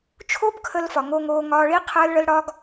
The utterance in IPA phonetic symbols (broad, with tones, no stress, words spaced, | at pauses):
t͡ʃʰo˦bkʰə˧lfɒ˨ ŋo˧ŋoː˧ŋɒː˧ɭi˦ qʰəː˦lɭə˦l ɽɒ˦ɡ